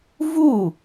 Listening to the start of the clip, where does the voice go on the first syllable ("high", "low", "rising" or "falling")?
falling